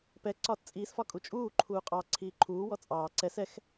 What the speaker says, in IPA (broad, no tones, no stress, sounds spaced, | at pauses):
p ɛ ǀ ɒː t t͡sʼ iː s f ɒ kʼ u t͡ʃʼ uː ǃʰ uː qʼ ɑ ǀʰ iː ǃʰ uː w ɔ t͡sʼ ɑː ǀ ɛ s ɛ x